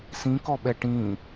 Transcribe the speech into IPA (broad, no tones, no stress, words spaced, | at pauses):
sĩkɔɓɛ ʈĩ